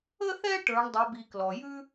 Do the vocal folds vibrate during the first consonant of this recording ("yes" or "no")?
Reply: no